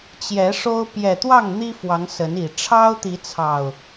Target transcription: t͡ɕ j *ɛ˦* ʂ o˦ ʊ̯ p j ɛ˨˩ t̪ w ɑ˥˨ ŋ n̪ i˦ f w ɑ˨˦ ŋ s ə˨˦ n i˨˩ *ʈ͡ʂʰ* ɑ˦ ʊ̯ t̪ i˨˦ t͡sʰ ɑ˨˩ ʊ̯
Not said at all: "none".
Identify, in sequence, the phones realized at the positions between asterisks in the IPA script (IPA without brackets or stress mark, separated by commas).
ɛ˨˦, ʈ͡ʂʰ